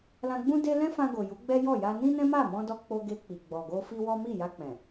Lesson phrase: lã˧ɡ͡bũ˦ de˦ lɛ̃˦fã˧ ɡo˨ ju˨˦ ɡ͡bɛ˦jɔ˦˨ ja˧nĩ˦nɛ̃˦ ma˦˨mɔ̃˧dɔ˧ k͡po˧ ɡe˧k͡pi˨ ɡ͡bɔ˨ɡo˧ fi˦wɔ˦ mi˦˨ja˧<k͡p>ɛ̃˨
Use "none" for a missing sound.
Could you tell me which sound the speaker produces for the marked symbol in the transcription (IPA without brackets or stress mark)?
k͡p